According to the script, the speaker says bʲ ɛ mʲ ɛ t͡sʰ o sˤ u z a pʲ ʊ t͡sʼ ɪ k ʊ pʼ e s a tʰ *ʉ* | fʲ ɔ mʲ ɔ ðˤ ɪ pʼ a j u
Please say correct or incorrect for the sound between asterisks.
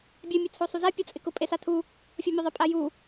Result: incorrect